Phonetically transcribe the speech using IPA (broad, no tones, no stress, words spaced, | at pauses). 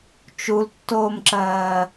t͡ʃultːoːmǁɜː